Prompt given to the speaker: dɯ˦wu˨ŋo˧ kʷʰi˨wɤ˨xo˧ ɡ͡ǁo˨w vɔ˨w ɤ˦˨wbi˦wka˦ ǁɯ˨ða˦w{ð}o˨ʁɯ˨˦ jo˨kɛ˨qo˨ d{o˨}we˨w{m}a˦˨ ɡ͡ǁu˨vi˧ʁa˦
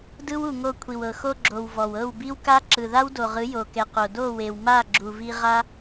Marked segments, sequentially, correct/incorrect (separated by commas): incorrect, incorrect, correct